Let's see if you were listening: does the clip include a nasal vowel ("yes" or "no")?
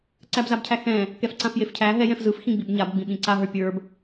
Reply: yes